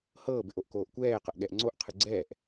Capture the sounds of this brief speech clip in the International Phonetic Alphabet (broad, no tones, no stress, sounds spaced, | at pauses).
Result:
h ɤː b ɪ ʔ o ʔ k oː ʔ kʷ ɛː q ɤ ʔ ɠ ɛ ʔ ŋ͡ǀ o ʔ qʰ ɨ ɡ͡ǀ ɛː ʔ